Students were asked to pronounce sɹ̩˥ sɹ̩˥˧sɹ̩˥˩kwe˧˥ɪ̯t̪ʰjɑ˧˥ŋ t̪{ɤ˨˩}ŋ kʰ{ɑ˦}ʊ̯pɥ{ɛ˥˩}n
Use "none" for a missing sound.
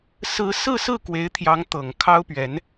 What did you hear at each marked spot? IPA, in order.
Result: ɤ˨˩, ɑ˥, ɛ˧˥

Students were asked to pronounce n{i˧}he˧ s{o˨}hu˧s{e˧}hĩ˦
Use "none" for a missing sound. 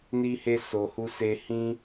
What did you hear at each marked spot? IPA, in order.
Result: i˧, o˨, e˧

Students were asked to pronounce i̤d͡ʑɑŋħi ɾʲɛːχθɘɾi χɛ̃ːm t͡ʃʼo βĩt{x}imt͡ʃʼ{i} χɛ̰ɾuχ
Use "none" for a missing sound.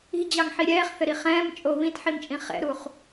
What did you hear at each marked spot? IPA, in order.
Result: ħ, ĩ

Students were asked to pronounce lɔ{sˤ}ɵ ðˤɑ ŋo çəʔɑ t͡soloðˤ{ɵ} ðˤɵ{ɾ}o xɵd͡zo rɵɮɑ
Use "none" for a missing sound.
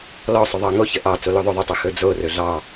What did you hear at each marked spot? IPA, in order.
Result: sˤ, ɵ, tˤ

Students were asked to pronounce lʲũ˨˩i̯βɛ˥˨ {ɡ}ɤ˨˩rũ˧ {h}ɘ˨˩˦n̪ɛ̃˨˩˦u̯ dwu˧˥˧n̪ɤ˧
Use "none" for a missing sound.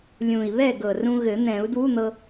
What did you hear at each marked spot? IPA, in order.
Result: ɡ, ɣ

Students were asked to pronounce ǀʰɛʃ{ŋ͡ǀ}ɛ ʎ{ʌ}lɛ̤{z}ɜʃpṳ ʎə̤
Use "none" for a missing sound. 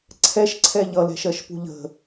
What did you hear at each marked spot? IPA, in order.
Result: ǀʰ, ʌ, ʃ

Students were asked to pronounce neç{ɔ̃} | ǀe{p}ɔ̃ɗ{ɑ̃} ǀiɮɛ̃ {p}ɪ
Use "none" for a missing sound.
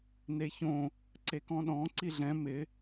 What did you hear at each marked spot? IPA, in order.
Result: õ, k, ɔ̃, m

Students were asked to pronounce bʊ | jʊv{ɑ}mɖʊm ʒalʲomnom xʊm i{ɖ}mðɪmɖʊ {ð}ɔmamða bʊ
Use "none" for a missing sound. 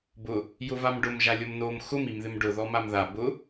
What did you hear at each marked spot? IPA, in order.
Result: a, none, ð

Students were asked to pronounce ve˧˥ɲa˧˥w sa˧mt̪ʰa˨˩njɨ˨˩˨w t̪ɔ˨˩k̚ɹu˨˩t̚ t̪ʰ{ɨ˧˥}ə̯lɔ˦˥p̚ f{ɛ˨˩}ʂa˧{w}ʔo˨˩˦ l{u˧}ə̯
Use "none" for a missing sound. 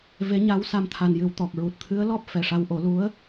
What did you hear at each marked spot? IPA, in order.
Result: ɨ˧˥, ɛ˨˩, w, u˧˥

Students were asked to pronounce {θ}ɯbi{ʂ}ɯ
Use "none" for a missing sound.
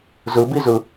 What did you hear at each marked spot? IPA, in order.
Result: z, z

